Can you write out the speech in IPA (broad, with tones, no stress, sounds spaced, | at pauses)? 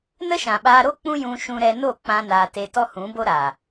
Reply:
n ə˦ ʃ ã˨ ɓ aː˧ ɾ o˦ k͡p ũ˦ j ũ˧ ʃ ũ˧ ɾ ɛ˧ n o˦˨ k͡p ã˧ n aː˨ t e˧ t ɔ˦ h ũ˨˦ b o˦ ɾ a˨